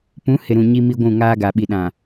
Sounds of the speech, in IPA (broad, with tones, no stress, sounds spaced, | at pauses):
p ũ˨˦ h ɪ˨ ɾ ũ˨ ɲ i˦ m i˦ ɡʷ ũ˦˨ ŋ aː˦ ɡ a˨ ɓ i˨ ɗ ã˨